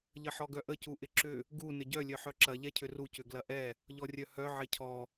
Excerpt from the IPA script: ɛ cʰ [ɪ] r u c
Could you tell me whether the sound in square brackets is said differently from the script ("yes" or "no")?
yes